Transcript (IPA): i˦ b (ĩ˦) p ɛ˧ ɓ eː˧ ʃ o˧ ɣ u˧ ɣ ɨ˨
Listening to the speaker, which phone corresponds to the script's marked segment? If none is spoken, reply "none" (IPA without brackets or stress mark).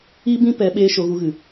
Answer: ĩ˦